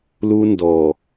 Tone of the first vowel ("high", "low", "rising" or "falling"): high